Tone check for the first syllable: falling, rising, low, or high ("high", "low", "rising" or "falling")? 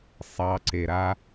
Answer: low